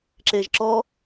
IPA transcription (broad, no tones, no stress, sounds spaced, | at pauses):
ǁ eː ʒ ǁ ɔ